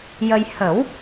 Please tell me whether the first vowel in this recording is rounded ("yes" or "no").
no